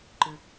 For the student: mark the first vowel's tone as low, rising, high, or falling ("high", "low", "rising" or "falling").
low